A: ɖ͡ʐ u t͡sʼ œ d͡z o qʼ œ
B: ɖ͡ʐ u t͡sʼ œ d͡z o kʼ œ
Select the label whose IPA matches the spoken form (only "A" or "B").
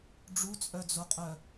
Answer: A